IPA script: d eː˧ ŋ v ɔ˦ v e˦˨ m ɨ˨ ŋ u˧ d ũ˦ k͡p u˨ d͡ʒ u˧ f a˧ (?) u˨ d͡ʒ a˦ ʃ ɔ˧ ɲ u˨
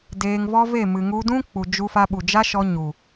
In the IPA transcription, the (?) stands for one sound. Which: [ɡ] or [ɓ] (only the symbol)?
ɓ